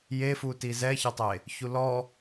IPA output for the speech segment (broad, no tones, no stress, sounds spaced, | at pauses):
j e f u t i z ɛ ç ɛ tˤ e | ç u l ɔ